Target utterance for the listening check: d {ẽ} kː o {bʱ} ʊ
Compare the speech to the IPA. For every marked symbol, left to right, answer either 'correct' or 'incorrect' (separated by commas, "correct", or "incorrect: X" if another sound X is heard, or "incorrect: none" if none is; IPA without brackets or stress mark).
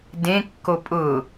correct, incorrect: pʼ